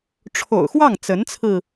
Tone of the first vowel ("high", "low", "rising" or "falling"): low